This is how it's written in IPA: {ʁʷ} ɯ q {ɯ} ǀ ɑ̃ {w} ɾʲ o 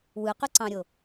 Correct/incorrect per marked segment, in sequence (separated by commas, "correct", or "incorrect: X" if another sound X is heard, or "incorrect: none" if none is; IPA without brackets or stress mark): incorrect: w, correct, incorrect: none